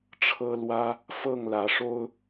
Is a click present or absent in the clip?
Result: absent